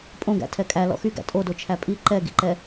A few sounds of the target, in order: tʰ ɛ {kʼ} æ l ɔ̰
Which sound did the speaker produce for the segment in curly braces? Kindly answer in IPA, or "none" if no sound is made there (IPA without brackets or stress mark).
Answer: kʼ